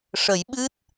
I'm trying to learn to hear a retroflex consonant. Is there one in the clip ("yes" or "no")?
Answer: yes